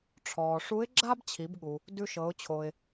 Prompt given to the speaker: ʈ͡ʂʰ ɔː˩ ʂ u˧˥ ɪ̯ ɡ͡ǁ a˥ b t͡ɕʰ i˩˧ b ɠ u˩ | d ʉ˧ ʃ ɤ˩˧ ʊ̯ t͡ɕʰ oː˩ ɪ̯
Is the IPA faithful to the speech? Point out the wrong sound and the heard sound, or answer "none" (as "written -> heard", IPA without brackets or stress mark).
none